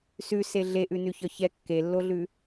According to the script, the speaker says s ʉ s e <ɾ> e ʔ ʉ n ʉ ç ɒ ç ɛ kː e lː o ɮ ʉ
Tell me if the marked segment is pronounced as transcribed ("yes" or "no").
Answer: no